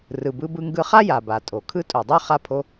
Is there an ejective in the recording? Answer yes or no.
yes